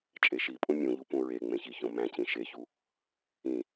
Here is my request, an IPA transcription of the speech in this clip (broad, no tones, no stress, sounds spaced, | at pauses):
t͡ʃʼ e ʃ i pʼ ũ mʲ ũ ʎ u p ũ ɹ e ŋ͡m ẽ ç i ç õ m æ̃ c ĩ ʃ e ç u | ĩ